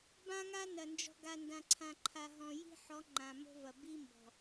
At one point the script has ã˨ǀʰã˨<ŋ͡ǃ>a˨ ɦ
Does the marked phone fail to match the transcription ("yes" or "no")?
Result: yes